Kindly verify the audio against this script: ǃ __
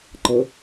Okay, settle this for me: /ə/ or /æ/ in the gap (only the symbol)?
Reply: ə